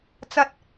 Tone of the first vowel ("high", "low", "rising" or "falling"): high